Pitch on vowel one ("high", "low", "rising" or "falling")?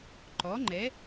rising